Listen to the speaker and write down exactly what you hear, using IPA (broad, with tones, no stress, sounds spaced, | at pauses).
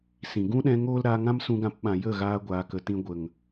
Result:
s ĩ˨ ɡ ũ˦ ɗ ɛ̃˧ ŋ oː˦ l ɾ aː˧ ŋ ã˦ m s ũ˧ ɡ ã˧ p ɓ ã˨ j ə˦˨ ɣ aː˧ ɡʷ aː˨ k ə˨ t ĩ˧ ɡʷ ə˨ ŋ